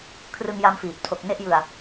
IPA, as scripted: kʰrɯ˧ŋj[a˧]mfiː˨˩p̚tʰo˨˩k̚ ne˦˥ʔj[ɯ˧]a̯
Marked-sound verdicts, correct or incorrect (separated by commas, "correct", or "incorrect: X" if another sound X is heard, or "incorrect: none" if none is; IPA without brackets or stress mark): correct, correct